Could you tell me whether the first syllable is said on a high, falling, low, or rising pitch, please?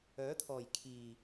rising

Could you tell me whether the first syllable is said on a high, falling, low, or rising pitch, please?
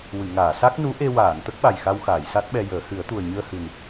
low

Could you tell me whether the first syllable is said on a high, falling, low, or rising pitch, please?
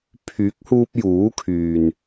rising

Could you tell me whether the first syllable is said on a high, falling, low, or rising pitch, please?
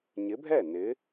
rising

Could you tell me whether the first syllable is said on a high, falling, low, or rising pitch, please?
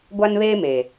high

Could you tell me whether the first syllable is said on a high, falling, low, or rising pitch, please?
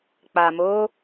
low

